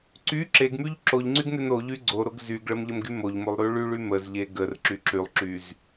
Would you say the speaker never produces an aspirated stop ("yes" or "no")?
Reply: yes